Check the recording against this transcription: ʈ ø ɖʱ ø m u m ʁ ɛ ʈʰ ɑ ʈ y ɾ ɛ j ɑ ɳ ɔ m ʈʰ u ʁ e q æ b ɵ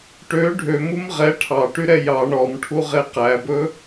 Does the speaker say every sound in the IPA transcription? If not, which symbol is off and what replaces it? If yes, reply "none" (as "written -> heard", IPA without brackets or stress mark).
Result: none